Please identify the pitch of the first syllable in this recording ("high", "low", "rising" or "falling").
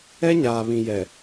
high